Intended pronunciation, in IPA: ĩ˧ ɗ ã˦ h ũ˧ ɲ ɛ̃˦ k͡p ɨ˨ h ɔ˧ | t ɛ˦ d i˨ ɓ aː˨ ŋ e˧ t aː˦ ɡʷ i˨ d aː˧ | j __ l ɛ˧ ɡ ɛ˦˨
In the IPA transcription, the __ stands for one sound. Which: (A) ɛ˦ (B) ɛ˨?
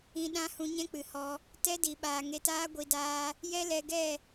A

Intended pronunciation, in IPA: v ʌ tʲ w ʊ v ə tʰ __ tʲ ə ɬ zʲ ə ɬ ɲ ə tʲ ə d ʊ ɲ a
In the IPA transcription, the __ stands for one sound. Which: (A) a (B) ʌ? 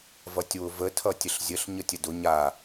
B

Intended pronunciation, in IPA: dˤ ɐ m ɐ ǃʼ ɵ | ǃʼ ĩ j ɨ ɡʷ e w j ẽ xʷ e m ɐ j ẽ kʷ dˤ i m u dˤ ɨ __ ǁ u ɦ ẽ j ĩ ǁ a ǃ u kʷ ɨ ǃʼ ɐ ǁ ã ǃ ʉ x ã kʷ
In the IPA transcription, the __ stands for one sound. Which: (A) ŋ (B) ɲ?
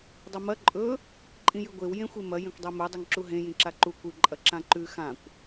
A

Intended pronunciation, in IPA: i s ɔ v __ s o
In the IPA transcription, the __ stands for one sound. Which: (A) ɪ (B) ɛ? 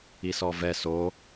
B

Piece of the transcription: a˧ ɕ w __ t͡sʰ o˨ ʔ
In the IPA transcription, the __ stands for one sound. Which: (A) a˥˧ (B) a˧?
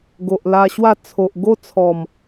A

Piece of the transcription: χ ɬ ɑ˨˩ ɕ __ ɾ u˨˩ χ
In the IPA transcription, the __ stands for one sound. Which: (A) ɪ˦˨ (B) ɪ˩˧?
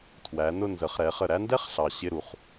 A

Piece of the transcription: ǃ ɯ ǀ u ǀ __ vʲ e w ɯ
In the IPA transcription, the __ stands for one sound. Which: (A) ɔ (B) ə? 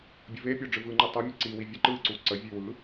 B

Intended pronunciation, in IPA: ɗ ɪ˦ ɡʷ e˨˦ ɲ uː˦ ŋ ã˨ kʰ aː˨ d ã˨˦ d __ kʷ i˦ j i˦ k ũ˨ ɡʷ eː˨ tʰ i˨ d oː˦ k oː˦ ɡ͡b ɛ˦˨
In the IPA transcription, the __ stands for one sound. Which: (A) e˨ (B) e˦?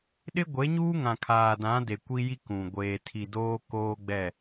A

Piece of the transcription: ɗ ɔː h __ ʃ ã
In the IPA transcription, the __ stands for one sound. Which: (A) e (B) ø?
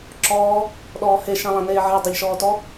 A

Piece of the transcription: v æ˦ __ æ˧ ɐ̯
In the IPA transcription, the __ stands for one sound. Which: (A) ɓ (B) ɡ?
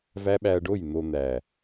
A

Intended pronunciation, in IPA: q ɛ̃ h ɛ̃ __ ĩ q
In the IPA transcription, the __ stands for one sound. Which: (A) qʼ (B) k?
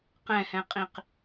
A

